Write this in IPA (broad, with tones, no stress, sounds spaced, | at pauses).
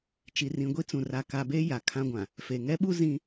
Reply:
t͡ʃ i˨ r ĩ˨ ɡʷ i˦ t͡s ũ˨ r a˨ k a˨ b e˦ j a˨ kʰ ã˦ ɡʷ ã˨ | f e˨ ŋ ɛ˦ ɓ u˦ z ĩ˦